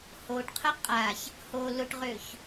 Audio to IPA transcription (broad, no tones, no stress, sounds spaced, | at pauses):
h o ʈ qʰ ə qʼ a ç | h o l ʊ ʈ ʁ ø ç